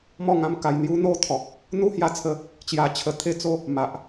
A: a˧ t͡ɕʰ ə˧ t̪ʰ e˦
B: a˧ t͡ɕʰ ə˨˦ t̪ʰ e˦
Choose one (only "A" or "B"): A